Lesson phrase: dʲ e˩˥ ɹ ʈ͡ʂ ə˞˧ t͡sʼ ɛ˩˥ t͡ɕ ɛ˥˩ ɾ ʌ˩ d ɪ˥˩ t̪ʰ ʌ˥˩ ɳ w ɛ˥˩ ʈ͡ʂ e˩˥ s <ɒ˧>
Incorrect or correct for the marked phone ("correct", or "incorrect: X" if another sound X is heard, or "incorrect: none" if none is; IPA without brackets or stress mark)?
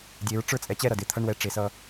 incorrect: ʌ˧